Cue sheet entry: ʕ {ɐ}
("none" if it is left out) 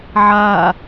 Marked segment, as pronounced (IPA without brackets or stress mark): a